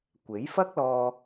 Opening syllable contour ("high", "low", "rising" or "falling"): rising